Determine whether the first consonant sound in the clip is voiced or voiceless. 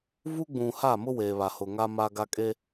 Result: voiced